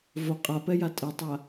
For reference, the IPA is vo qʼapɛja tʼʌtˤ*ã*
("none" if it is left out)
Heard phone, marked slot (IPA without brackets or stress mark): a